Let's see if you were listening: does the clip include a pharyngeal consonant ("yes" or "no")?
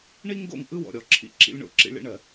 no